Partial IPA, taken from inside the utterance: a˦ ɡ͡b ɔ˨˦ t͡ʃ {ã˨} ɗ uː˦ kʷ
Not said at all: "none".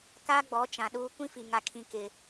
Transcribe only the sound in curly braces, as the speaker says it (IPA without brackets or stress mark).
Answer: ã˨